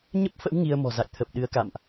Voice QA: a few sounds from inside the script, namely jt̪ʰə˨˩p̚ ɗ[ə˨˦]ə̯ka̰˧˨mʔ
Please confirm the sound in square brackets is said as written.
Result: no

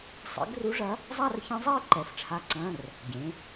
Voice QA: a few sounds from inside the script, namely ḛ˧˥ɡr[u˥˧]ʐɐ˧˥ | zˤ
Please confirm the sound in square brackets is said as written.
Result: no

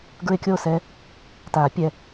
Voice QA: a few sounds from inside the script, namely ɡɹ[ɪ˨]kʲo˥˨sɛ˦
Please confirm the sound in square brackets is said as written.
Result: no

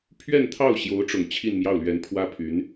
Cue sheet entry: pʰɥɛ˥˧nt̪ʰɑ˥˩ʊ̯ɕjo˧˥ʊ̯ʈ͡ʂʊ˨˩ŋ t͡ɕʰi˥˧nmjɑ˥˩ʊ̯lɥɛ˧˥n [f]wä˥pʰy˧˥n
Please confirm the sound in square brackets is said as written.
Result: no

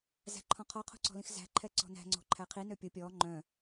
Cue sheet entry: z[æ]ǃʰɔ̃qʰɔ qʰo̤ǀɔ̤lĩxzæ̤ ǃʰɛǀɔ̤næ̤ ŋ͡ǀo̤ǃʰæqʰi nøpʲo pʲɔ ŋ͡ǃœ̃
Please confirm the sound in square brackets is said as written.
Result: no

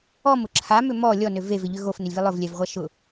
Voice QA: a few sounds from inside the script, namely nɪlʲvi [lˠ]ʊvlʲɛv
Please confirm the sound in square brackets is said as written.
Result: yes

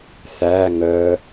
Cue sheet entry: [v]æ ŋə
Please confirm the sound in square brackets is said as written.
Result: no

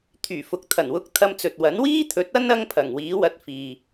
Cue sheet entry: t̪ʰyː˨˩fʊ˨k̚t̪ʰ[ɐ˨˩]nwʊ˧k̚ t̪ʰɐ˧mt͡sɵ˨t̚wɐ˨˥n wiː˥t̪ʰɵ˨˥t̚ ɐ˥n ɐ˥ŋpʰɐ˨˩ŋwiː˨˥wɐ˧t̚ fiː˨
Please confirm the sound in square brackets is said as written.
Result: yes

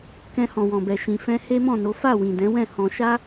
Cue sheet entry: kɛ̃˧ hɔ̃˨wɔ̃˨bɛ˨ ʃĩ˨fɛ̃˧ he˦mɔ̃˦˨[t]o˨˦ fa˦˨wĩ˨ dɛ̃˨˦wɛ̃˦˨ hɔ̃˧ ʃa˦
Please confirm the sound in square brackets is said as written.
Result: no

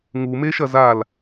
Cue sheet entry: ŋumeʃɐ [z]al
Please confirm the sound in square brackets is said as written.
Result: yes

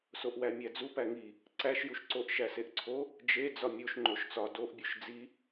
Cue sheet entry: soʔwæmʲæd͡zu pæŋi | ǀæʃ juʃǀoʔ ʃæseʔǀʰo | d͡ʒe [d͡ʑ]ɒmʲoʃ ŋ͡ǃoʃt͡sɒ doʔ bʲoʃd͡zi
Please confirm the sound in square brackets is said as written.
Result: no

